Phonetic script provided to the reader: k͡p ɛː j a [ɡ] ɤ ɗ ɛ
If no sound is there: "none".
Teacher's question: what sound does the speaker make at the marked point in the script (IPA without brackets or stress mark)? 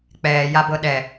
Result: b